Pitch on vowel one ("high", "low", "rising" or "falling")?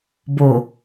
low